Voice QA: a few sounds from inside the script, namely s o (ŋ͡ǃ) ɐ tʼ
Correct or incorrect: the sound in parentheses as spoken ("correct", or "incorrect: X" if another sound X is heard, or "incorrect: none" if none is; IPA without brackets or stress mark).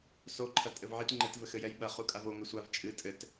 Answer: incorrect: ǃʰ